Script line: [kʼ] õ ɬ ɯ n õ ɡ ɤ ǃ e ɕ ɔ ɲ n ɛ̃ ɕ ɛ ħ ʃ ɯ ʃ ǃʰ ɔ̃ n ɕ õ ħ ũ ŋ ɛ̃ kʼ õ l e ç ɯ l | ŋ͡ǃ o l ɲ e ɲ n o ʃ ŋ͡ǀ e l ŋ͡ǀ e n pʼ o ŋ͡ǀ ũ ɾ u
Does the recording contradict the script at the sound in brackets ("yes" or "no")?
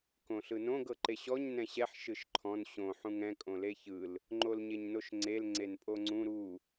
yes